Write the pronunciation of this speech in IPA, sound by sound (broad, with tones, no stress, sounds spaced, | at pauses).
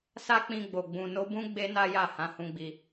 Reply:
s a˦ k͡p ĩ˧ ɡ͡b o˨ ɡ͡b ũ˨ n o˧ b ũ˦ ɡ͡b e˦ n a˦ j a˦˨ h ã˨˦ h ũ˧ ɡ͡b i˧